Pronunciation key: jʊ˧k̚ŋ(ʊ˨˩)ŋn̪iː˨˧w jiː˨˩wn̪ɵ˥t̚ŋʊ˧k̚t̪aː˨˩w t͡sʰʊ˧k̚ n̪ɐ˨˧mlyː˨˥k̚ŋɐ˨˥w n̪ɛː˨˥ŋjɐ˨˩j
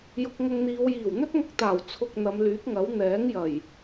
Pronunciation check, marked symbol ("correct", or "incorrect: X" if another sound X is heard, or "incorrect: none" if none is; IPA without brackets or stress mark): incorrect: ʊ˧